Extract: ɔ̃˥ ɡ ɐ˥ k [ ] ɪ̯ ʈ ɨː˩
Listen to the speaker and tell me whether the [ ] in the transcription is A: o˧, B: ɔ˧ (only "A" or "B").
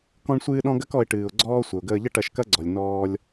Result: B